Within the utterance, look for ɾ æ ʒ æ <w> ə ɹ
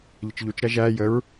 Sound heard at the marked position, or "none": j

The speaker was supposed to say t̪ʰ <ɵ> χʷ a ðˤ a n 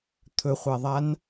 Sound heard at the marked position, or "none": ɵ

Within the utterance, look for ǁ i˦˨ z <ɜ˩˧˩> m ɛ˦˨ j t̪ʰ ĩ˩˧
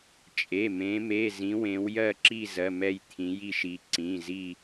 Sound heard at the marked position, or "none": ɜ˩˧˩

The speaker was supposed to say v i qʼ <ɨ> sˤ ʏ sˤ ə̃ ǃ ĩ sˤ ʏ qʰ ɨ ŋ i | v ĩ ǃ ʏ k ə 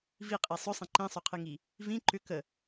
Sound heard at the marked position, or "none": e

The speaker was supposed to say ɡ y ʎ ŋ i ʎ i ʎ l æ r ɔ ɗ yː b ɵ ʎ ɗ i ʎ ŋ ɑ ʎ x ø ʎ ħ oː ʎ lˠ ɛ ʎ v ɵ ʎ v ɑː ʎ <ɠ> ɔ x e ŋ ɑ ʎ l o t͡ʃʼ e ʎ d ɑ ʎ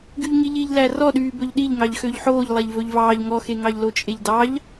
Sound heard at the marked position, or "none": ŋ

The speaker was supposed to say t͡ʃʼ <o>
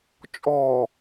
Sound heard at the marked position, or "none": ɔ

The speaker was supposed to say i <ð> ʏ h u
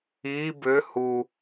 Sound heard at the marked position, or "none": b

